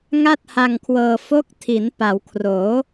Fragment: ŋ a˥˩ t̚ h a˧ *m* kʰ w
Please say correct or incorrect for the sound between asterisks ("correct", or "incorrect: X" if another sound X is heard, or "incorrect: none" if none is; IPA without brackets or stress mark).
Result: incorrect: ŋ